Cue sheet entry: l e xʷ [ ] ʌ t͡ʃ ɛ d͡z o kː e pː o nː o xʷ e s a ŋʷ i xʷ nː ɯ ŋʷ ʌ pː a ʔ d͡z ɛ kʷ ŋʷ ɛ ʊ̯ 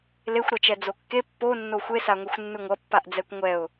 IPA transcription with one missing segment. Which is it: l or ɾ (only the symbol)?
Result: ɾ